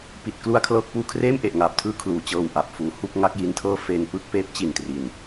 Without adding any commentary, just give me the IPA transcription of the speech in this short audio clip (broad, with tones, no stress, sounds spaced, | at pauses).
p i˨˩ t̚ k l u˥˩ a̯ kʰ l ɤː˥˩ k̚ p uː˧ kʰ r eː˥˩ m ʔ e˨˩ ʔ ŋ aː˨˩ p̚ tʰ ɯː˥˩ kʰ l uː˩˦ t͡ɕ ɤː˧ w ʔ a˨˩ p̚ f uː˩˦ h u˥˩ k̚ ŋ a˦˥ k̚ j i˦˥ n tʰ ɤː˥˩ f e˧ n p ɯ˦˥ k̚ p eː˦˥ p̚ t͡ɕ i˨˩ n t r i˨˩ n